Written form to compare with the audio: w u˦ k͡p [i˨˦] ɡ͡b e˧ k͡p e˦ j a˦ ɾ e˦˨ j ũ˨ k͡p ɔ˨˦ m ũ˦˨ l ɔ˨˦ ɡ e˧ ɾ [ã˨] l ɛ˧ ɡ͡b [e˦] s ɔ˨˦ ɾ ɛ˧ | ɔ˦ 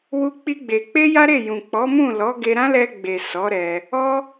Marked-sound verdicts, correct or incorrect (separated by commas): incorrect, incorrect, incorrect